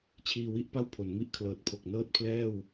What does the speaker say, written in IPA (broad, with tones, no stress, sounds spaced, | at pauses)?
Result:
t͡ɕʰ iː˧ w i˥˩ ʔ p a˥˩ w pʰ o˩˦ n m i˥˩ ʔ kʰ l ɤː˨˩ t̚ pʰ o˨˩ k̚ n ɤː˥˩ t̚ pʰ l ɛː˥˩ w